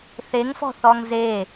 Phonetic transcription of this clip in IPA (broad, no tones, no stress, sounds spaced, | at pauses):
θ e ŋ f ɔ̤ θ ɔ ŋ z e